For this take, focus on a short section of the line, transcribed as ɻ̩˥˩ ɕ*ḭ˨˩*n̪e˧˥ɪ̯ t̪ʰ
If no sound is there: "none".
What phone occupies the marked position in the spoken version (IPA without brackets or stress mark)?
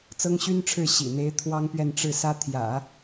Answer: ḭ˨˩